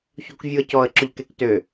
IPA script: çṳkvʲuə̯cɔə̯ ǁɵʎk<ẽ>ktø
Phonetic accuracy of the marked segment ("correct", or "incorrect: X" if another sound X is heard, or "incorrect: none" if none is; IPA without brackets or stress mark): incorrect: e